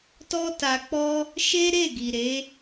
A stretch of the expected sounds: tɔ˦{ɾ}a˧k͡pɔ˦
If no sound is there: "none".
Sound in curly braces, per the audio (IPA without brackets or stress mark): t